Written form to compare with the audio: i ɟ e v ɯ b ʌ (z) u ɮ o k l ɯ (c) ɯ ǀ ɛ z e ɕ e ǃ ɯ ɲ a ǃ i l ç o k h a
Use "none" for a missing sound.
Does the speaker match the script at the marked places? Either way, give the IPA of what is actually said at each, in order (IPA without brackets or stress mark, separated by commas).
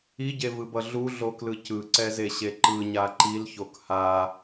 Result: ɮ, c